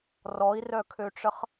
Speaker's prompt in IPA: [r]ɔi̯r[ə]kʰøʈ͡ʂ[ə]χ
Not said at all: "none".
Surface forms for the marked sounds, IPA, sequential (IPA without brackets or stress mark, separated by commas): r, œ, ə